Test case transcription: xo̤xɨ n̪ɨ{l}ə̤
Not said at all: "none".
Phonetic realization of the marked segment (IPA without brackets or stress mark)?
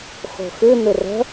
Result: r